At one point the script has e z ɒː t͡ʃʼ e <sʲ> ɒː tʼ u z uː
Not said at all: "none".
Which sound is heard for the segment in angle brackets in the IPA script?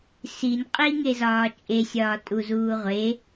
sʲ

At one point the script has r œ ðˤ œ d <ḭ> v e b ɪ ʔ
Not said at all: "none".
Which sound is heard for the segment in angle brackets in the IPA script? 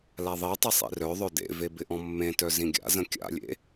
ḛ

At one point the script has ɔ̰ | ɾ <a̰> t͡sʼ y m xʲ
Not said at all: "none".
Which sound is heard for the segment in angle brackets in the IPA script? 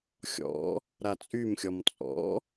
a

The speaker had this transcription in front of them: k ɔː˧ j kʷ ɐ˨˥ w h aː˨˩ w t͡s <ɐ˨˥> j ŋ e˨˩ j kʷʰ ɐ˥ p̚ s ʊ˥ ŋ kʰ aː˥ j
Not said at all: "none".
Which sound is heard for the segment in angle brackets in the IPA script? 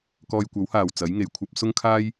ɐ˨˥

